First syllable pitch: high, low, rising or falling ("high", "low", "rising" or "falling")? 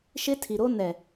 high